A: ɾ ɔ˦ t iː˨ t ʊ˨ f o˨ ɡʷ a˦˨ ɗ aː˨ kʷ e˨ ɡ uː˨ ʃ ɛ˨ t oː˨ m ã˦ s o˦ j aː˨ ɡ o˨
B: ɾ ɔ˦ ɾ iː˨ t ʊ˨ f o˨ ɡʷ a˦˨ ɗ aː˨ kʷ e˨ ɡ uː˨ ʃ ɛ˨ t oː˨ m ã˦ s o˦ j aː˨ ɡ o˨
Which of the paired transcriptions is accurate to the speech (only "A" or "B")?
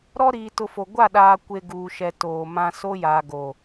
B